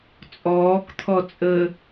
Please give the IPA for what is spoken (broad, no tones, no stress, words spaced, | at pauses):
t͡sʼɔːkt̪ʰɔ t͡sʼə